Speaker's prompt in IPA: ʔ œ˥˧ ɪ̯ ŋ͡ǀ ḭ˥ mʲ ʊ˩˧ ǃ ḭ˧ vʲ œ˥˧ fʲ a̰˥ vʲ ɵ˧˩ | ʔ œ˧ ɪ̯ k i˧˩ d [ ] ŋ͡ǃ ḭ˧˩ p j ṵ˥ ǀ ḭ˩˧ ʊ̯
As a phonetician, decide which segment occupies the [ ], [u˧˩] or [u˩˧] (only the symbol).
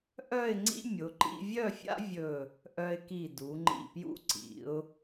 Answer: u˩˧